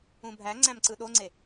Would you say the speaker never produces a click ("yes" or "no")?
no